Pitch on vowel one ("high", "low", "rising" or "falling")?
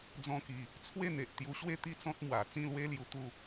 high